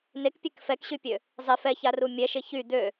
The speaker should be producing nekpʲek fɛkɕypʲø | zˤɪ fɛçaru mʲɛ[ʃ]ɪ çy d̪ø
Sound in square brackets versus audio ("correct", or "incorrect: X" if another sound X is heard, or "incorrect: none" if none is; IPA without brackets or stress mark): correct